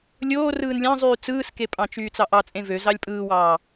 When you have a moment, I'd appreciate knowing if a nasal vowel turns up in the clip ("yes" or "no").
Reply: yes